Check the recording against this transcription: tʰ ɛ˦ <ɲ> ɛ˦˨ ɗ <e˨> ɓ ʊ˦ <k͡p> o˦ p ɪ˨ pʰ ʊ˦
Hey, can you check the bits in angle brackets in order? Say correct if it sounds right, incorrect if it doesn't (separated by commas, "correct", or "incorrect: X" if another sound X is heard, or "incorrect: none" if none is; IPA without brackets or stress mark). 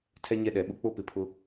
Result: correct, incorrect: ɛ˨, correct